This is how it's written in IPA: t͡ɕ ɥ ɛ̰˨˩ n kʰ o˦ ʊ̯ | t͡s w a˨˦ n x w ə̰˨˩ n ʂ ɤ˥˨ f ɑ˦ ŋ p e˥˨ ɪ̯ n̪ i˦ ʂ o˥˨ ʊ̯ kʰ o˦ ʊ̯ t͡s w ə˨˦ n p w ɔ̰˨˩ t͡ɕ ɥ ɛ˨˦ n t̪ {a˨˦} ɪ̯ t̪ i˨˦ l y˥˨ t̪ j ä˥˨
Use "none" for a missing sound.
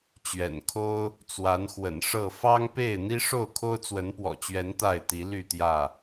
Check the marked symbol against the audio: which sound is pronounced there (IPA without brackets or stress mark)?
a˥˨